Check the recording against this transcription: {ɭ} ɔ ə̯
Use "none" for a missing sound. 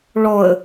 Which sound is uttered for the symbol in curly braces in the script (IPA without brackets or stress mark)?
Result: ɭ